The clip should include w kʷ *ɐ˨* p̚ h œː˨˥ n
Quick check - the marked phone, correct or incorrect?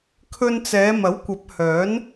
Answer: incorrect